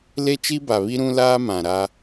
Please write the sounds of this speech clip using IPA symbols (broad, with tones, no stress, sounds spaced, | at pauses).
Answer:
l e˦ t͡ʃ i˦ b a˨ β i˦ ɾ ũ˦ l aː˦ m ã˨ ɾ a˦